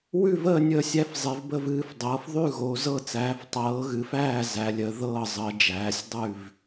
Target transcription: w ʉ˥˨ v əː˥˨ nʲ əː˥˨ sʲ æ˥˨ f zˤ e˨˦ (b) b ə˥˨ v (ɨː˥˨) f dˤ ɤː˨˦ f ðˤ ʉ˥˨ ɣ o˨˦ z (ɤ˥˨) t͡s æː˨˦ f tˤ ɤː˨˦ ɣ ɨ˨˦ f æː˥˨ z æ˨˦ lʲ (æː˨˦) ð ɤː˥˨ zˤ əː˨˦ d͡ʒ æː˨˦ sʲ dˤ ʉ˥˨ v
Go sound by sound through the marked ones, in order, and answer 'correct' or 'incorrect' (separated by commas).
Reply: incorrect, correct, correct, incorrect